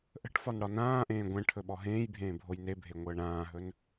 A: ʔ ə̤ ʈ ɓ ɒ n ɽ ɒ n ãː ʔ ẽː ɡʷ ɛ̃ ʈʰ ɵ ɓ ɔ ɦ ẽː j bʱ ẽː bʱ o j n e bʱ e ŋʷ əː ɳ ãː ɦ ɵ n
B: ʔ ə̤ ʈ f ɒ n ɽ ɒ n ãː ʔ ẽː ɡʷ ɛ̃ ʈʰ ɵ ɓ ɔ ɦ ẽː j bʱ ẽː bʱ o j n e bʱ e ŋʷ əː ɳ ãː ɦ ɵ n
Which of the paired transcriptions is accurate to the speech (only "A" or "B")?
B